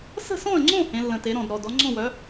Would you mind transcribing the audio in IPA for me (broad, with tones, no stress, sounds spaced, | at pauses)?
s ə̤˥˨ s ɔ̃˥˨ ə̯ ŋ͡ǀ õ˥˨ h ẽ˩˥ lː ə̃˨˩ t e˩˥ ɾ ɔ̃˨˩ d ɾ ɔ˨˩ d ɔ˩˥ ŋ͡ǀ ɔ̃˥˨ w œ˩˥